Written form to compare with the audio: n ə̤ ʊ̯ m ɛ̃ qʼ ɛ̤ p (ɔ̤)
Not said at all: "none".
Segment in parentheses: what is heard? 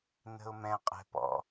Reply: ɔ̰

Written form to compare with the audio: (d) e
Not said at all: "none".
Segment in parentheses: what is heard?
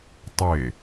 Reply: tˤ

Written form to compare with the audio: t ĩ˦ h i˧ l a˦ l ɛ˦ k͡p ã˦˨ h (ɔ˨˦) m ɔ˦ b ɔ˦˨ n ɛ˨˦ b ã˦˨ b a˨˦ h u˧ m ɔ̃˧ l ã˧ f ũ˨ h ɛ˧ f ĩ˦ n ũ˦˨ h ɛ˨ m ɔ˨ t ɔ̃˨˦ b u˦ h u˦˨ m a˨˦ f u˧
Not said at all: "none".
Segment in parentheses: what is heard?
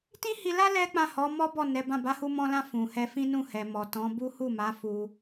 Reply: ɔ˨˦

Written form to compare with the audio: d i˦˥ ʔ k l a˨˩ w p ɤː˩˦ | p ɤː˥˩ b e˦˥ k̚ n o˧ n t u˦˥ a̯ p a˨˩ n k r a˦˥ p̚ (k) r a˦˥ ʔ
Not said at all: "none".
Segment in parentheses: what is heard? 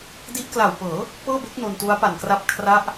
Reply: kʰ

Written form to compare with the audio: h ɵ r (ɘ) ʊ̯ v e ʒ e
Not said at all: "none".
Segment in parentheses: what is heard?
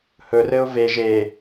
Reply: ɘ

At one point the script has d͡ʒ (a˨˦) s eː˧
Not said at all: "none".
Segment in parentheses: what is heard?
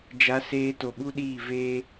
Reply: a˨˦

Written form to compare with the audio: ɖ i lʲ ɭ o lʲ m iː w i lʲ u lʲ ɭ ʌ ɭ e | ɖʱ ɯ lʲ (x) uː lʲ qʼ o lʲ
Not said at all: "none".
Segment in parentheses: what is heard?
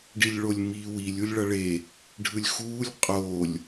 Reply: x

